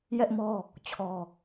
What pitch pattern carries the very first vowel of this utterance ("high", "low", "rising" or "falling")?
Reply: high